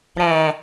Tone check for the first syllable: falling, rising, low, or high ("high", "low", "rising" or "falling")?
low